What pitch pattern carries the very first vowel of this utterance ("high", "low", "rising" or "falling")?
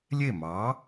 falling